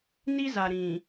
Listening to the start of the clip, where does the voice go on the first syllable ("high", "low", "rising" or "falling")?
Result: high